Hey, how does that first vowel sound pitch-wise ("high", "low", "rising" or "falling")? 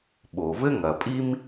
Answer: low